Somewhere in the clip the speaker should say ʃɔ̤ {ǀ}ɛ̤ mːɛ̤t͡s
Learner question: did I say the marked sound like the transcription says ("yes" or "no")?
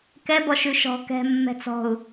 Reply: no